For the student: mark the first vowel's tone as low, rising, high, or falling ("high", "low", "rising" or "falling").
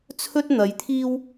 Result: high